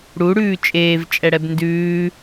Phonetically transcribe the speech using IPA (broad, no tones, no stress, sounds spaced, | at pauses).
ɽ u ɽ ʉː t͡ʃʼ eː v t͡ʃʼ ɛ ɽ ɛ b n d ʉː